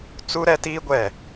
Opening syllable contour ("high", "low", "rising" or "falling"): high